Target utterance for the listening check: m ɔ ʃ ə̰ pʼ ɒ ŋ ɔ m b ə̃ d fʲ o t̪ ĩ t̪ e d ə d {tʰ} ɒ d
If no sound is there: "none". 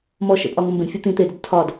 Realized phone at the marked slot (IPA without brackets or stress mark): tʰ